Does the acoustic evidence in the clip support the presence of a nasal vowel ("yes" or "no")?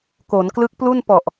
no